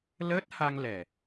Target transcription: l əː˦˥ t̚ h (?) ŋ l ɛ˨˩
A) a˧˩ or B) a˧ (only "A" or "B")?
B